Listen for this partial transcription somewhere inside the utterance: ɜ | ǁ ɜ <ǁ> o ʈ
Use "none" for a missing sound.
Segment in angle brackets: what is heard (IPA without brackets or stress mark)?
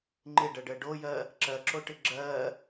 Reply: ǁ